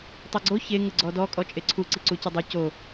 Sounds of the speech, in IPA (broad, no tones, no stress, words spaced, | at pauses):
tˤiɡ͡ǀo çe ŋəɡ͡ǀɔdɔ kʼɔt͡ʃʼeǀʰu ǀiǀucədˤɨ co